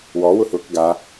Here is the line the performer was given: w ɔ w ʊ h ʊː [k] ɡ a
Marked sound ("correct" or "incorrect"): correct